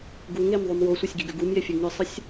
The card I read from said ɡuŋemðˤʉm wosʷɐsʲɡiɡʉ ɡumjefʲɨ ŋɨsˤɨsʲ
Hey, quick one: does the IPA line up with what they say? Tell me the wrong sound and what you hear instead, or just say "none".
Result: none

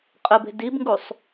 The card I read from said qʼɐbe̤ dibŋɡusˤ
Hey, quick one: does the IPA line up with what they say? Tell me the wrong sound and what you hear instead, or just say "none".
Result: ɐ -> ə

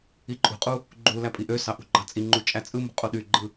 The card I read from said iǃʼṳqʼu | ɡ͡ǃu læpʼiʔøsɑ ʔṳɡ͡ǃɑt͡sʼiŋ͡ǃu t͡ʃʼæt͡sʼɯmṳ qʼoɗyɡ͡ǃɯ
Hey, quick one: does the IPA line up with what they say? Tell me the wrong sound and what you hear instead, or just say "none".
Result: none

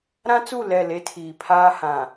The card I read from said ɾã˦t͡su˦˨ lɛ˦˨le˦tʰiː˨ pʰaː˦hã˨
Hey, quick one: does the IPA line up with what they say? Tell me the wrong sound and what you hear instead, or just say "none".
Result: none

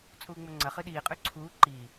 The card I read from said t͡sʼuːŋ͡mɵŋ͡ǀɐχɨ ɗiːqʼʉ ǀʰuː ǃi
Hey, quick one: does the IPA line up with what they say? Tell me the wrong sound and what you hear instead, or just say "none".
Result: none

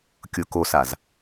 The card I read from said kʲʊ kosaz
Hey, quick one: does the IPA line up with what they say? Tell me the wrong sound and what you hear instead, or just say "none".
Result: none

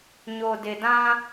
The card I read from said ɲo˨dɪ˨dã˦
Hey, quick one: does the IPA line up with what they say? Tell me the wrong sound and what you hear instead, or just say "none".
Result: none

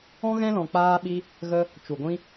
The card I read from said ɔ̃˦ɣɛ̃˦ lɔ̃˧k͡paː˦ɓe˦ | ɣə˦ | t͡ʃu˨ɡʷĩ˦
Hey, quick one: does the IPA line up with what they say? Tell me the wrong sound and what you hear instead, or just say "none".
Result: e˦ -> i˦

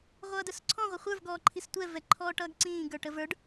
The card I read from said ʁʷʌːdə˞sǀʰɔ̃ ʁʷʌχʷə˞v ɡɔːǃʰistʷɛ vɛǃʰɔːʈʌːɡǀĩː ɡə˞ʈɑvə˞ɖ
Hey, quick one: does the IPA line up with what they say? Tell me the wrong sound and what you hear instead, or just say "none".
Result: ɑ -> ə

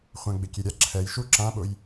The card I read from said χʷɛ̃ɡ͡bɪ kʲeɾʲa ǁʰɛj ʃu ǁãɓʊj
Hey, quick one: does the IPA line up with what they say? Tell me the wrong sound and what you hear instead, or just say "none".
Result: none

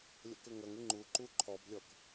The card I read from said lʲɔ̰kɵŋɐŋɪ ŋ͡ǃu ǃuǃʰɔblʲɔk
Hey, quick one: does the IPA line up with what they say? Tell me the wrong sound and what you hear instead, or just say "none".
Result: none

